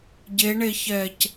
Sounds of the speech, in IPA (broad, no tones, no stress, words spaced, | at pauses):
ɟeɳeçɛc